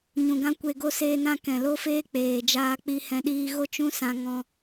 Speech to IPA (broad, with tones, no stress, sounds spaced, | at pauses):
ɲ ũ˨ ɡ ã˦ kʷ e˧ ɡ o˦ s eː˧ n ã˧ k ɛ̃˨ l o˦ f eː˦ k͡p eː˨ d͡ʒ aː˧ k͡p i˧ h ɛ̃˧ ɗ iː˧ ɣ o˦ t͡ʃ ũ˦ s ã˧ ŋ ɔ̃˧